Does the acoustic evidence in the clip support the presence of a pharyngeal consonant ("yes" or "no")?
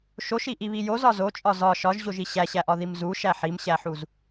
yes